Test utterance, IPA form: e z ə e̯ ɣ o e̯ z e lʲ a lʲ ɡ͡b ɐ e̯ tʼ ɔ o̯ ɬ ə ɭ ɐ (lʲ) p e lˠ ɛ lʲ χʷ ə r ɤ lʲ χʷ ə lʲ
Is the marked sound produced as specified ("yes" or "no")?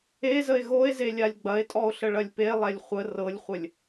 yes